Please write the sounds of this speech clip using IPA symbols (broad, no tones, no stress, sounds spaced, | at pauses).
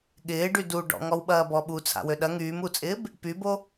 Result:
ɠ ɪː ɖ y d u ɖ ɔ̰ ŋ ɔ w ɓ ɐː b ɔ ɓ u t͡sʰ a̰ w ø ɗ ɐ ŋ yː m u t͡sʼ ɪː b | p y b o